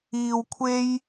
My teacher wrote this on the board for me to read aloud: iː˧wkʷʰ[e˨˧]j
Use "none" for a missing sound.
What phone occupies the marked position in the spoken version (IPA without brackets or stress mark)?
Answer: e˥